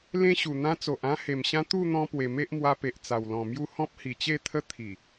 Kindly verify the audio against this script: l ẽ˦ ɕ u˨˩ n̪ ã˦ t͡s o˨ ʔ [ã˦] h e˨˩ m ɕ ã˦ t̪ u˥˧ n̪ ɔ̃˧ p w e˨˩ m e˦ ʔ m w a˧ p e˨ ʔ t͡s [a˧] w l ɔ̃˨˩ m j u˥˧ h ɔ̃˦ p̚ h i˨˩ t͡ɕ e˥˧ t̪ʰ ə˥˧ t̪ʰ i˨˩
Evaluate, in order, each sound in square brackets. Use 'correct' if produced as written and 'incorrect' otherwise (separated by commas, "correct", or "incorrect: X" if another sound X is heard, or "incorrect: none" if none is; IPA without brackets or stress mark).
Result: correct, incorrect: a˨˩